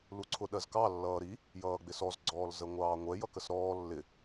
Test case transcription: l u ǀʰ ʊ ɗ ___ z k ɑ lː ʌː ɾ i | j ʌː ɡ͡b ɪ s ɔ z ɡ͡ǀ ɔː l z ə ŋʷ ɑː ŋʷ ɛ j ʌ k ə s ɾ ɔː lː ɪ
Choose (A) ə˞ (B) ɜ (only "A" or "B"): B